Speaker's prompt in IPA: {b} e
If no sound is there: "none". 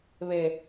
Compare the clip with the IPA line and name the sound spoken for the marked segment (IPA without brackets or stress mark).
β